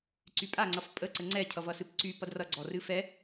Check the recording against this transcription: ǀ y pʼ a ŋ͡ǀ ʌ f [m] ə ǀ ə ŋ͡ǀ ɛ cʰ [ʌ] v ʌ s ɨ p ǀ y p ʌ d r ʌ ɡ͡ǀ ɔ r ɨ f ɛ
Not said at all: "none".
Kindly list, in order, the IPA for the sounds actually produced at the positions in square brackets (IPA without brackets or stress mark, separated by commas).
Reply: pʼ, ʌ